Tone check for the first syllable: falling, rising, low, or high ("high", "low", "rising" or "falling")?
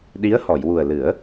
rising